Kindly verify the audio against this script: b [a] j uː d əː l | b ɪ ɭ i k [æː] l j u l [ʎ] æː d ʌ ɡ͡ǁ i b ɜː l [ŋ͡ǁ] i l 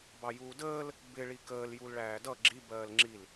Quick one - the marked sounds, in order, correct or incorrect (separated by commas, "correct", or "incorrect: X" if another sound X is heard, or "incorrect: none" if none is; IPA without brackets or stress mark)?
incorrect: ɑ, incorrect: əː, incorrect: ɭ, correct